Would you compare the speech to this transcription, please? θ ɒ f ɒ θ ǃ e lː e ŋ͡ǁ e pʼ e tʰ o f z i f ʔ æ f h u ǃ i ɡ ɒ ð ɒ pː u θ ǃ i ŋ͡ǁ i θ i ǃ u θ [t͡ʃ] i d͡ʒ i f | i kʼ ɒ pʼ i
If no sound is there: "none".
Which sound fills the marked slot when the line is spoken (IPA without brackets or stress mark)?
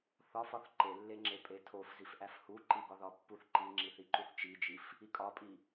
t͡ʃ